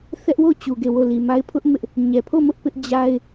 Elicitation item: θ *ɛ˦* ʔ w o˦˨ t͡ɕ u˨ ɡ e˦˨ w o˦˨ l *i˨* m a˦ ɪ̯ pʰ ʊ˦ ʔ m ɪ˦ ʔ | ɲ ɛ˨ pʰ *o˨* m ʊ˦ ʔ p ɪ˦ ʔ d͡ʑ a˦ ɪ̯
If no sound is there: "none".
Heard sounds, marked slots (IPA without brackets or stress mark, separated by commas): ɛ˦, i˨, o˦˨